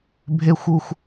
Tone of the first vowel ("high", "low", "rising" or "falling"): falling